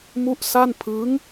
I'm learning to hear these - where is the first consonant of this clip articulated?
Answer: lips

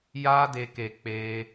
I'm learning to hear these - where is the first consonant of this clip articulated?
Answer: palate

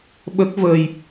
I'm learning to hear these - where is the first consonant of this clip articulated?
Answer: lips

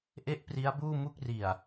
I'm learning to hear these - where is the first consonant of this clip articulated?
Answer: throat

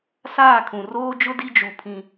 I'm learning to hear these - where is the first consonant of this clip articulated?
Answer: tongue tip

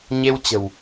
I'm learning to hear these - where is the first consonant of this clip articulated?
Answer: palate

